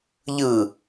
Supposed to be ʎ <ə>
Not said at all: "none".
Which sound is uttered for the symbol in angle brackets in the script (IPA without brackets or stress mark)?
ɯ